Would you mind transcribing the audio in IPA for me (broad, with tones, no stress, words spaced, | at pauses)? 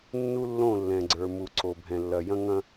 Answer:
nːu˦lːõ˦˨lːɛ̃˨ɡ͡ǀə˞˨ mu˨ǀo˨bʱɛ̃˨lːɐ˨ jɐ̃˦ŋɐ̃˦